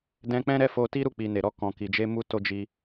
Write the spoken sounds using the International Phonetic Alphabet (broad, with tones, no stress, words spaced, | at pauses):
dɛ̃˧k͡pɛ̃˦ɾɛ˧ fo˧ti˦ɾu˦˨ k͡pi˨ne˨ɾɔ˧ kɔ̃˨ki˨d͡ʒe˧ mu˧to˧d͡ʒi˧